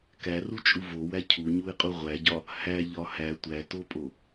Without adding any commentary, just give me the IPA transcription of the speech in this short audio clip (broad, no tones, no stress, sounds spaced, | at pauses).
k æ r u t͡ʃʼ u v o w æ cʰ u ɲ u ɪ̯ qʼ u ʁʷ æ ɟ ɒ | h æ ʎ ɒ h æ tʷ æ t o pʼ o